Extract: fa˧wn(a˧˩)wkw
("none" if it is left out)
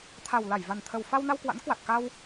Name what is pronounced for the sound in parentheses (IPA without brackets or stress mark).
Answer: a˧